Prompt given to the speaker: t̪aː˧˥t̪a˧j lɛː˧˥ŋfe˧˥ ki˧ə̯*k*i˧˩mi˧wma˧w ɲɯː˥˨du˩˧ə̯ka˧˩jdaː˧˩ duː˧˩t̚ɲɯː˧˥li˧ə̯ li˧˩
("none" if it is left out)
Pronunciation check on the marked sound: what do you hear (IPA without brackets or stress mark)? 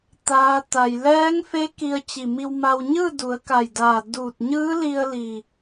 t͡ɕ